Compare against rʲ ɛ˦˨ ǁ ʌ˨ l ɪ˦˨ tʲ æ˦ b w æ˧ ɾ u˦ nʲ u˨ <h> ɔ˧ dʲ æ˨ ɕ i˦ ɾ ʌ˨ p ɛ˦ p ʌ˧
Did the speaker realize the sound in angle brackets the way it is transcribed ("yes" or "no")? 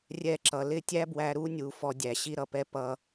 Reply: no